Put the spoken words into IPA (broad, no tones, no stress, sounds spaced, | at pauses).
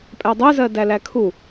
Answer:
pʼ æ dˤ ɜ z ɜ d æ l æ kʰ u